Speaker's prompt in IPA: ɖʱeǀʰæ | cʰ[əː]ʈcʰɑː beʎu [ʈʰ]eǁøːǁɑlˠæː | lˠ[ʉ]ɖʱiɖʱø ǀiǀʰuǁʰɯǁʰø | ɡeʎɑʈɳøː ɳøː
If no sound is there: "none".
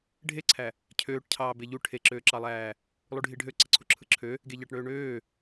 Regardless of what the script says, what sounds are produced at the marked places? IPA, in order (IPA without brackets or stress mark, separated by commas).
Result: øː, ʈʰ, u